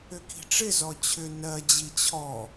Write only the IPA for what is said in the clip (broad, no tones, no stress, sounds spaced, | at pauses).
ʏ k i̤ ʈ͡ʂ ɪ z ɔ t͡ɕʰ ʏ n ɜ d͡ʑ i t͡ɕʰ ɔ